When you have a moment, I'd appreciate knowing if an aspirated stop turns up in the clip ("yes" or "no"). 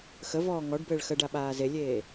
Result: no